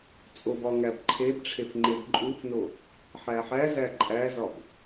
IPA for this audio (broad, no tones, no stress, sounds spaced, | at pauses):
t͡sʼ o b ɒ ŋ æ b ǃʰ e b ʈ͡ʂʰ e f ŋ͡ǃ e b ǃʼ u f n o | ħ æ ħ æ z æ ǃʼ æ z ɒ b